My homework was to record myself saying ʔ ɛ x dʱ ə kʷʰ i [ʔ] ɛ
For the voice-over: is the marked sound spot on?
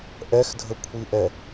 yes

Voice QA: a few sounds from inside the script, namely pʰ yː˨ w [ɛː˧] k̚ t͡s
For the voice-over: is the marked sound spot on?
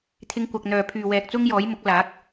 yes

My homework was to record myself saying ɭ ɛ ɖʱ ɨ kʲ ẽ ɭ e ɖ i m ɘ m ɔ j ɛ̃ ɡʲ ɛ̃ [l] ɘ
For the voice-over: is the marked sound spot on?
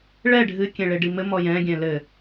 yes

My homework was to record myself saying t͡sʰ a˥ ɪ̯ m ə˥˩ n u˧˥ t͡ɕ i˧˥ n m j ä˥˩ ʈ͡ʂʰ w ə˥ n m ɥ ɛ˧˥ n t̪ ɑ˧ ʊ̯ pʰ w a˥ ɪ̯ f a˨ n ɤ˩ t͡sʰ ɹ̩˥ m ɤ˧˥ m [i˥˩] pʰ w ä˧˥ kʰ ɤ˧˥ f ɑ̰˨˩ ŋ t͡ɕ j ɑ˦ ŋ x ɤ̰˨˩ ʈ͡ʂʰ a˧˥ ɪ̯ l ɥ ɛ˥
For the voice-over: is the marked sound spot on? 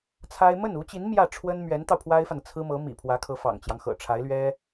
no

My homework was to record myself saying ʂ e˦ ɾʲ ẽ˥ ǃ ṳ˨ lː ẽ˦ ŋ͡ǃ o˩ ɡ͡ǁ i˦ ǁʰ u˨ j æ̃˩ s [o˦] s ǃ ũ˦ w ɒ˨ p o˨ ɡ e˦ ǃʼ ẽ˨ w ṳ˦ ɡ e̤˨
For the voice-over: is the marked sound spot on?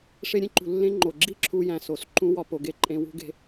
no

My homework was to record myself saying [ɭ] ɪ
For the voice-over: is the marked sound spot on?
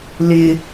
no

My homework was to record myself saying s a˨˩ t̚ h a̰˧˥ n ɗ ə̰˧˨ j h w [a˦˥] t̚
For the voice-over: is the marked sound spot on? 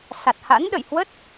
no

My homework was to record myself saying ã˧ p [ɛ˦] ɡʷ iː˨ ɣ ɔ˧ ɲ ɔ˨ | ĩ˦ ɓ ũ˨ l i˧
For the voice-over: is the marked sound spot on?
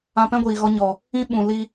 no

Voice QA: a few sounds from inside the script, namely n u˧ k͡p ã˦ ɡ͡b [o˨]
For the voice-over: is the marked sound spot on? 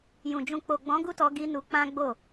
no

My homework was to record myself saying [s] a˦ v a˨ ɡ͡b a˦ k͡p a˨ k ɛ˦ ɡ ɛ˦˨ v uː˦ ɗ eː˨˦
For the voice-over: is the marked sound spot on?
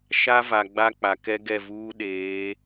no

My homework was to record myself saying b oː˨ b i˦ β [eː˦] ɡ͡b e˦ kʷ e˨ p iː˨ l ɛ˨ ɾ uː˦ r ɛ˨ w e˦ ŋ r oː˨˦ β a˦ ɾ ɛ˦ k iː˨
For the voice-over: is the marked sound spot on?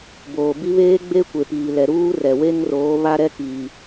yes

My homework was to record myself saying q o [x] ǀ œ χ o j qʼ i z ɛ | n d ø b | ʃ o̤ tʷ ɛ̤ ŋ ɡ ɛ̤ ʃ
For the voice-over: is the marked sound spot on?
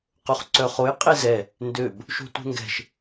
no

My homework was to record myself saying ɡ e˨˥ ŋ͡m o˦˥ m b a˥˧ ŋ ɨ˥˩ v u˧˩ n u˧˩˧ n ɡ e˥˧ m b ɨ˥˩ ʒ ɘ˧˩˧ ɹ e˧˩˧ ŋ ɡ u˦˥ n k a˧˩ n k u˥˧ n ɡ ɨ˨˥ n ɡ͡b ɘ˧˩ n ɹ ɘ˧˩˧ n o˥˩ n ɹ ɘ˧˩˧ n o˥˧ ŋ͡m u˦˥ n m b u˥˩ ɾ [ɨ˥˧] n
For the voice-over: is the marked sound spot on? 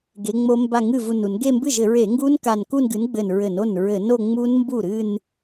yes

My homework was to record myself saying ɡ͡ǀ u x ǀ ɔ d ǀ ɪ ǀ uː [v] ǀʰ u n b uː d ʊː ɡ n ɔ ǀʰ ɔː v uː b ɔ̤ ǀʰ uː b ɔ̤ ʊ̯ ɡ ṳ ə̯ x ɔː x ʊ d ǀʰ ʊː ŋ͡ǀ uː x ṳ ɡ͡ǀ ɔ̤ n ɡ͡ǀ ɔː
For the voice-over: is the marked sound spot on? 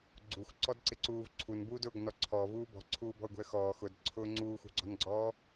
yes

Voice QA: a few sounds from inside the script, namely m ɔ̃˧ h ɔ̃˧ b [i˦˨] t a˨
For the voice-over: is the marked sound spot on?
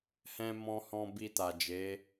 no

